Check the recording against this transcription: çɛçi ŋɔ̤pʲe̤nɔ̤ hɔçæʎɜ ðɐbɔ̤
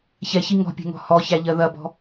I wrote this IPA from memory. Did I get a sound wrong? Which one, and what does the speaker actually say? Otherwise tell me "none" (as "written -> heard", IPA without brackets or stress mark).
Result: n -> ŋ